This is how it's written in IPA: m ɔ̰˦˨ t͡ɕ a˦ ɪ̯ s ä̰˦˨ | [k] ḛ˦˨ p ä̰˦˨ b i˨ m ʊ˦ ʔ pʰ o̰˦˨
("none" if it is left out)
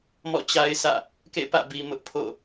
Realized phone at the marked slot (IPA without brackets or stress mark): k